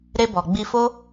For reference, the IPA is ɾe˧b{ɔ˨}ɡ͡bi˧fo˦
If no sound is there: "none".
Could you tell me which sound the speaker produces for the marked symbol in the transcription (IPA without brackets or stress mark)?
ɔ˨